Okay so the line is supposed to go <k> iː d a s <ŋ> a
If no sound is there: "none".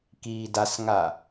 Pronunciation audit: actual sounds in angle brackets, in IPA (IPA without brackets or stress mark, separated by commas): k, ŋ